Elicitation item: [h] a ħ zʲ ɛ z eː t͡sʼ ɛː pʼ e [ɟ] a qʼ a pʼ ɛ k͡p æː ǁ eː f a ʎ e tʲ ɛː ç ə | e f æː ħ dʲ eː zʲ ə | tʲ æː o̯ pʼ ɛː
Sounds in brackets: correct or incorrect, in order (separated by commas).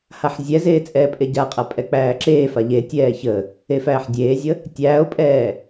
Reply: correct, correct